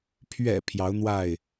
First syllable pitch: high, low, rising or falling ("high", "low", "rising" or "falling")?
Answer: low